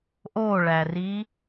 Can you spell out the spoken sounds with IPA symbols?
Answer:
ʔoɭæri

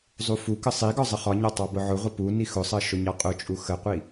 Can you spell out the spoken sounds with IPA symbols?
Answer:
zˤufukə sˤiɡɒ zˤəχɒɲɒ tˤɑbʊʕʊʁʷə pu nixʊsˤɜ ʃʊɲɑqʼʊt͡ʃʼu xəqʷi

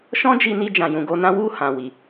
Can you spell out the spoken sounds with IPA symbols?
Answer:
ʃɔ̃˦d͡ʒi˧ni˧ d͡ʒã˨jũ˨ɡo˧nã˦ wu˦˨ hã˨wi˨

